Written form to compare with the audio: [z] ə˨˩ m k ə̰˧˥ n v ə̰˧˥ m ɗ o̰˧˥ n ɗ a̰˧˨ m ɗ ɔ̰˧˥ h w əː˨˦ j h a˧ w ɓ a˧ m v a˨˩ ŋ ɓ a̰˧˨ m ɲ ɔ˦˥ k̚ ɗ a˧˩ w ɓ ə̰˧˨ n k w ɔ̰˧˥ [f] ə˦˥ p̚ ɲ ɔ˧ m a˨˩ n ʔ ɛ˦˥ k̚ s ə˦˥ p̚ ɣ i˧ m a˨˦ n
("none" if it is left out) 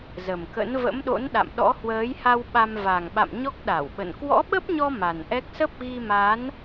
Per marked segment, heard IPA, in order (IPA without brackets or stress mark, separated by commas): z, ɓ